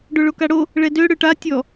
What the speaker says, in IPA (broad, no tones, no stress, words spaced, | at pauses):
ɖoɭokaɽo | ɭɛdø ɽøʈa tʲɔ